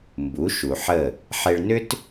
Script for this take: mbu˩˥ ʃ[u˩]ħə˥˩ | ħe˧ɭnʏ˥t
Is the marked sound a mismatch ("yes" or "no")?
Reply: no